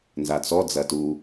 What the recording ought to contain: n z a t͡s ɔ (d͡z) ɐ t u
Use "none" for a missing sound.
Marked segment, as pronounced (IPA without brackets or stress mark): d͡z